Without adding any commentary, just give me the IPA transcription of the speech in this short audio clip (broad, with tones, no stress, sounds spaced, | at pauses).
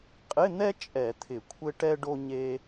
qʼ ɪ˧˥˧ n̪ ɛ˥ t͡ʃʼ ɛ˧˩˧ t̪ʰ ɪ˧˩˧ kʷʰ ɘ˥ ʈ ɛ˥ ɖ o˥ ɲ e˥